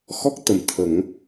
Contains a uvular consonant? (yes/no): no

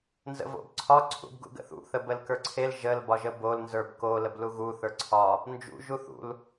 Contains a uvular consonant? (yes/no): no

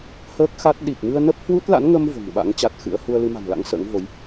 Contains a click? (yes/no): no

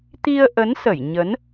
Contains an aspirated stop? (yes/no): no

